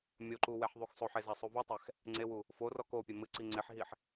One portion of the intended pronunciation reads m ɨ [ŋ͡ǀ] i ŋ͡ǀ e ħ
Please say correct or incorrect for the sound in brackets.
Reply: incorrect